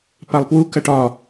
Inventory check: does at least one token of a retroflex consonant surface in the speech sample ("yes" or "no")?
yes